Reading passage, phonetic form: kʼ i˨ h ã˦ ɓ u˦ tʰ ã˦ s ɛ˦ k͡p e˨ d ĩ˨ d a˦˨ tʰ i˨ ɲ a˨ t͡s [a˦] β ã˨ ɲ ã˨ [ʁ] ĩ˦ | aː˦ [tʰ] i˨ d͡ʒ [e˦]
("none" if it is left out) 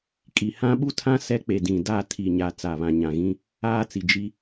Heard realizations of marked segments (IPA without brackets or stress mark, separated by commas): a˨, ɣ, t͡s, i˦